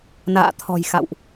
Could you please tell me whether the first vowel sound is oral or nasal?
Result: oral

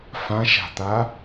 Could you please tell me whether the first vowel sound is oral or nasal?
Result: nasal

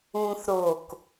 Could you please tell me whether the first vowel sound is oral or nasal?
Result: nasal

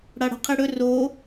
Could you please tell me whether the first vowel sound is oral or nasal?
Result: oral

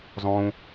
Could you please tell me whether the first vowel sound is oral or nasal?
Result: nasal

